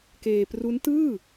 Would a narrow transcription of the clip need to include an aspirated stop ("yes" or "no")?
no